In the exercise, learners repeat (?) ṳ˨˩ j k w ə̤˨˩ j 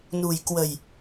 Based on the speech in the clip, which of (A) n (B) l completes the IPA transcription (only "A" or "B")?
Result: A